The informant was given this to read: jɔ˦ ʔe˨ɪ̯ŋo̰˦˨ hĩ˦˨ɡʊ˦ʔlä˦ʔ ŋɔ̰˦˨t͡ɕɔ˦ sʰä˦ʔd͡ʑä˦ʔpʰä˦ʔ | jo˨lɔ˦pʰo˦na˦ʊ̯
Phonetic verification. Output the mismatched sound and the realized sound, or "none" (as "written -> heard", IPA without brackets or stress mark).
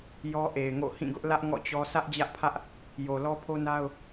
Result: none